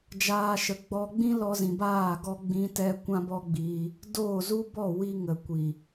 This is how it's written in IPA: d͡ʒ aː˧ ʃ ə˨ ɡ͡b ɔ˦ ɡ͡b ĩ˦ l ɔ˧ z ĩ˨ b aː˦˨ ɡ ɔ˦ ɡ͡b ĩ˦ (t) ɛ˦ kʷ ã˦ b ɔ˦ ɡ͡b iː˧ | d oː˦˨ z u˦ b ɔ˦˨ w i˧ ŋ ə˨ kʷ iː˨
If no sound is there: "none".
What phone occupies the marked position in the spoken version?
t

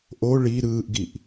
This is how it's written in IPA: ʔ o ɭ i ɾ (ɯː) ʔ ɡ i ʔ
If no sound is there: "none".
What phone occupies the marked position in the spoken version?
ɯː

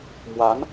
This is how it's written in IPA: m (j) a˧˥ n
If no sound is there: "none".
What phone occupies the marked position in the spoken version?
w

